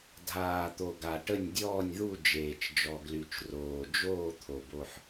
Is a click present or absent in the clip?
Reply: absent